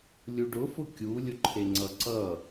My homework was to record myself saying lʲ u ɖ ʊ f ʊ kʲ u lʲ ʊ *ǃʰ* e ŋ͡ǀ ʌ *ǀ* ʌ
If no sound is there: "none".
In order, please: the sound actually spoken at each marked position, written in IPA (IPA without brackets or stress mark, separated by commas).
ǃʰ, ǀ